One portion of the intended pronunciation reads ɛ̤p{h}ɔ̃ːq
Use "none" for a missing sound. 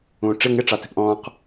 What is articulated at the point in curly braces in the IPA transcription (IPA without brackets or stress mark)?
ʔ